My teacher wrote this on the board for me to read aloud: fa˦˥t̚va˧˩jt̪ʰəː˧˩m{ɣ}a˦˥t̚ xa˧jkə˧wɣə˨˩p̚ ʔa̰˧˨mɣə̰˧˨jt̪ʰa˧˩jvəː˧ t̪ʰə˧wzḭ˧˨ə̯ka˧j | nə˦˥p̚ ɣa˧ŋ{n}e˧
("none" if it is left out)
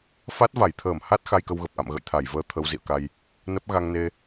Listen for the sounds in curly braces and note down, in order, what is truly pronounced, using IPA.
h, n

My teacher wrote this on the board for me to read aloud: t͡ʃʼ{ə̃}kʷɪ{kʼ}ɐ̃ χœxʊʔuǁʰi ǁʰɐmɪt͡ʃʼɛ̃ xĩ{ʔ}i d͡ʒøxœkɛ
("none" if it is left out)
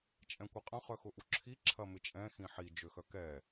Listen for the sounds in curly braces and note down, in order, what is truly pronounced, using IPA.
ɛ̃, qʼ, ħ

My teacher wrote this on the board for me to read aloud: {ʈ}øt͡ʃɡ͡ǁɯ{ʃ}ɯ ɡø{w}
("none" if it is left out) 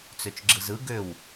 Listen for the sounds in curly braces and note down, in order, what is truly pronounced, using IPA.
t͡s, z, w

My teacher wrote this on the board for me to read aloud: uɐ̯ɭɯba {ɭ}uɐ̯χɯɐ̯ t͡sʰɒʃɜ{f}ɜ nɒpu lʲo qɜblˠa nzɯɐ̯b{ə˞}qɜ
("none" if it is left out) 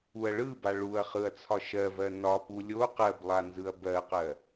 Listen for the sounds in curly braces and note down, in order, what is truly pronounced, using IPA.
ɭ, v, ɜ

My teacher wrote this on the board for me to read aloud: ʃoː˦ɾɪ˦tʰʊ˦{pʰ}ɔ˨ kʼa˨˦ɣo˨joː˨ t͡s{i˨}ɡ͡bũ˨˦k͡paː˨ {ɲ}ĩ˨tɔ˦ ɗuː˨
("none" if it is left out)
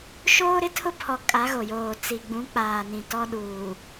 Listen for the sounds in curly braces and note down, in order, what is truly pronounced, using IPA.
pʰ, i˨, n

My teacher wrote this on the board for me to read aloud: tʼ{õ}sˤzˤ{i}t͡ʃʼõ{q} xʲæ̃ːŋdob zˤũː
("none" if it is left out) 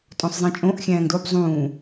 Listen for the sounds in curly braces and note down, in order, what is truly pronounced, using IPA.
õ, ĩ, ʔ

